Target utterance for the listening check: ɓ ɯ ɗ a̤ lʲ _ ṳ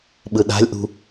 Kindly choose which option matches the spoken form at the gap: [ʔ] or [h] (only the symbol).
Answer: ʔ